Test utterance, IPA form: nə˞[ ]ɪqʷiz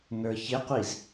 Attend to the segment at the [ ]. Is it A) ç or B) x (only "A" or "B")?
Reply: A